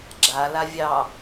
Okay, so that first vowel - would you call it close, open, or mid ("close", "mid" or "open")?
open